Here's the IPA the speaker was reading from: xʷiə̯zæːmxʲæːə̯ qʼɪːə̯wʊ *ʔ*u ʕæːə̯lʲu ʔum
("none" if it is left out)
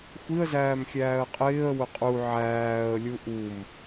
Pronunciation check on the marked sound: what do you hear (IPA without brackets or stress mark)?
qʼ